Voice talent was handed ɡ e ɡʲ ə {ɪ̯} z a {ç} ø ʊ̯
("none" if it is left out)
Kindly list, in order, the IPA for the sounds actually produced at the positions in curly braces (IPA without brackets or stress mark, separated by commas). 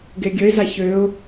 ɪ̯, ç